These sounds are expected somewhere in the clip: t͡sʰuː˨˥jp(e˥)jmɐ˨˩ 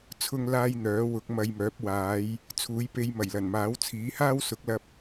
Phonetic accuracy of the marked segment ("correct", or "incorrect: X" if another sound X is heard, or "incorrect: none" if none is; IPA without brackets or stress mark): incorrect: e˧